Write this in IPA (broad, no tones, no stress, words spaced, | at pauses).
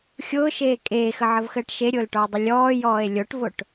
xʲʊːʃeː kʼeːxəʕəvxəːʈ ʃeɾʲʊːlʈɔe̯dˤʊ lʲɔːjɔːe̯ lʲoʈvoʈ